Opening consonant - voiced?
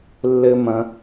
yes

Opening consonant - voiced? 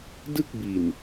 yes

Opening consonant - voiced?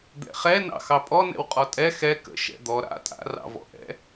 yes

